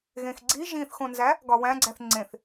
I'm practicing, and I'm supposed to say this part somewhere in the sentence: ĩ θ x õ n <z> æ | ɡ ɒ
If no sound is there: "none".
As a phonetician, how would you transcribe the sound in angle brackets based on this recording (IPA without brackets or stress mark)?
z